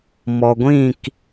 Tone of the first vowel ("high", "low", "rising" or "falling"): low